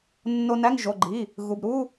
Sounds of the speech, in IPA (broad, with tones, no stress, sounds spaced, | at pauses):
nː o˧ n æ˧˥˧ ŋ ʒ o˩˧˩ ɡ͡ǃ i˩˧˩ | ɣ u˩˧˩ b ɾ u˧˥˧